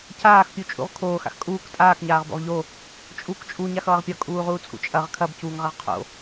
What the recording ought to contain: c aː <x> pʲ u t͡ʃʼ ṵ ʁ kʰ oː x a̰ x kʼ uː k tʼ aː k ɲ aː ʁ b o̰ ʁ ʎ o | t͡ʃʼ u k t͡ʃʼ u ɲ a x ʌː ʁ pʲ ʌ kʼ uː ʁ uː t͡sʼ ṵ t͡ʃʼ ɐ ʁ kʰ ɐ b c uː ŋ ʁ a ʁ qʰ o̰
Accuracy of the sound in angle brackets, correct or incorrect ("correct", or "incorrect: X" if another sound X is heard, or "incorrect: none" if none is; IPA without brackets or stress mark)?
correct